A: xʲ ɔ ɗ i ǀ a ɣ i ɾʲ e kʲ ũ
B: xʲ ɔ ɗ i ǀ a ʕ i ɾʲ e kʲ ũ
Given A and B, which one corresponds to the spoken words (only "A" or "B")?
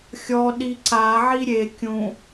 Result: B